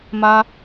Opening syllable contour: high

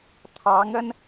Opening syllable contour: rising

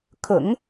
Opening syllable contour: low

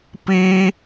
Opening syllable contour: high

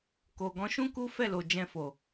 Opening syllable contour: low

